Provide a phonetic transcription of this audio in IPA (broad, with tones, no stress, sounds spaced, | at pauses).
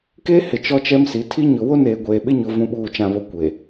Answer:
k eː˦ h ɪ˨ t͡ʃ ɔ˦ t͡ʃ ɛ˦ m s i˨˦ tʰ i˦ ɲ ʊ˨ w o˦ n eː˨ ɡʷ eː˨ ɓ ɪ˦ ɲ ʊ˨ v ũ˦ ɓ uː˦˨ t͡ʃ ã˨ β o˨ kʷ e˨